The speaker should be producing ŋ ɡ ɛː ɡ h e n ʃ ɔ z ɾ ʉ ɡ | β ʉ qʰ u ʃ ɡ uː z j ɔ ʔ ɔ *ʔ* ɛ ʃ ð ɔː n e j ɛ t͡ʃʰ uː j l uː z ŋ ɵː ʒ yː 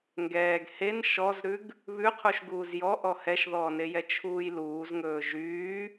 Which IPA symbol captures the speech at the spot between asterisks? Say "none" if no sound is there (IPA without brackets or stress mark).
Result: h